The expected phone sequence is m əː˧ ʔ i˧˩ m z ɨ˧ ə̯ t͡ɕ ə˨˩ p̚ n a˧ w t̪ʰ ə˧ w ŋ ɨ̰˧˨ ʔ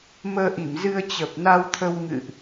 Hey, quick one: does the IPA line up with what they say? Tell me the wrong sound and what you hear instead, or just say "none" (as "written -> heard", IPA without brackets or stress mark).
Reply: none